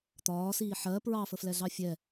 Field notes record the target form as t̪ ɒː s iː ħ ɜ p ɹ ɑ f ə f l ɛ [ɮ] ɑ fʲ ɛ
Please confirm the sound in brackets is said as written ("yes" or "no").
yes